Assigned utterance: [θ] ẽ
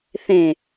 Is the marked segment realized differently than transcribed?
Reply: no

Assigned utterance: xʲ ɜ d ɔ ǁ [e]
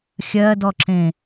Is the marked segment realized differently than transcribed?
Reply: yes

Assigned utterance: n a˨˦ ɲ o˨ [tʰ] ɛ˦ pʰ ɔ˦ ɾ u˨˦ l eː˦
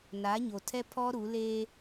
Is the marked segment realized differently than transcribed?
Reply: no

